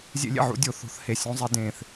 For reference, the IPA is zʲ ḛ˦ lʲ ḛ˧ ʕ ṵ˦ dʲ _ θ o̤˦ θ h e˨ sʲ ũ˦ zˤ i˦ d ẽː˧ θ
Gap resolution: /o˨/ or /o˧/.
o˧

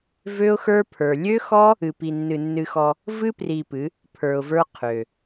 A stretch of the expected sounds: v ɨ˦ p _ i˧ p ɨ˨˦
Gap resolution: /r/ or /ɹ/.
r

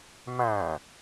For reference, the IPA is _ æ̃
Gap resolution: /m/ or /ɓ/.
m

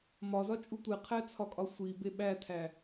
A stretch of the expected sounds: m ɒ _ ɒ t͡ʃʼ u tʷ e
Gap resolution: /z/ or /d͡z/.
z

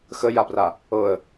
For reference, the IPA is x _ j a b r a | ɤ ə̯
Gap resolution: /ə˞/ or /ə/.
ə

